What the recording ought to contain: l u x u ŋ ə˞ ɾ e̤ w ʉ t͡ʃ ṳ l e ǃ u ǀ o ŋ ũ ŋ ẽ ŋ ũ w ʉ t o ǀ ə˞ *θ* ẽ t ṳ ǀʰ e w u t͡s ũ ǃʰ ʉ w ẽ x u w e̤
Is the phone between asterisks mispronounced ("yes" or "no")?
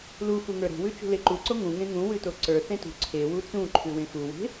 no